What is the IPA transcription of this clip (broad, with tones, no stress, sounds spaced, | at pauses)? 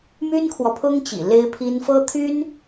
m y˥ n kʰ w ɔ˨ pʰ ʊ˥ ŋ t͡ɕ ḭ˨˩ l e˥ ɪ̯ pʰ i˥ n f ɤ˥ t̪ʰ y˥ n